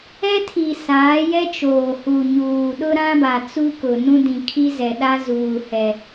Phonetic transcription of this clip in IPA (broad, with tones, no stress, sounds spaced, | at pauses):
ɛ˦ tʰ i˨ s aː˨˦ j ɛ˦ t͡ʃ oː˨ h u˨ ɲ uː˨ ɗ ʊ˦ ɾ ã˦ b a˨ t͡s u˦ k ʊ˨ n ũ˦ d ĩ˨ kʰ i˦ z ɛ˨ ɗ a˦ z uː˨ h ɛ˨